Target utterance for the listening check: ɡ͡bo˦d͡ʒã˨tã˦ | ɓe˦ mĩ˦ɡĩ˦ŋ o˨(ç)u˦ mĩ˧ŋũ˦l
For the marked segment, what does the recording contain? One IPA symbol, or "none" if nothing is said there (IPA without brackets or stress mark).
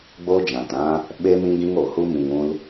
h